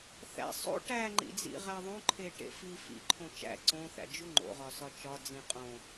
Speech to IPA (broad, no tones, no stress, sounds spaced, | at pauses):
θ æ̰ sˤ o̰ ʈ æ ŋ͡ǃ ḭ d͡z ḭ ʁ æ ðˤ õ ǃʰ e ʈ ḛ f i f ḭ ǃʰ õ t͡ʃ æ̰ ǀ õ θ æ̰ d͡ʒ u ŋ͡ǃ o̰ ʁ ɒ s ɒ t͡ʃ ɒ d͡z ĩ qʼ õ